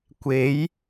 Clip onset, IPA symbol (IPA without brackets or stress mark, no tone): kʷ